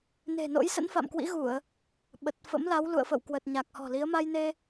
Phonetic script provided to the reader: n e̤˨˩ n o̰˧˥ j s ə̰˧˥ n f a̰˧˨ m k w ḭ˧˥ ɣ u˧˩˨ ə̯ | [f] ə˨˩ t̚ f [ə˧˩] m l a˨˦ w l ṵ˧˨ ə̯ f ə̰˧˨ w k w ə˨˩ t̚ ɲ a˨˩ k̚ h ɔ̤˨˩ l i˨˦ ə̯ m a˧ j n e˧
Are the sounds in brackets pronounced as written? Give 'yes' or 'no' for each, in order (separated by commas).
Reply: no, no